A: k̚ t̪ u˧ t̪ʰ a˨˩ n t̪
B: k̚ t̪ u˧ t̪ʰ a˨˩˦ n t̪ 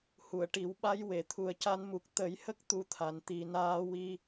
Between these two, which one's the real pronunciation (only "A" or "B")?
B